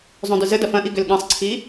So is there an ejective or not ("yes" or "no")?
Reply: no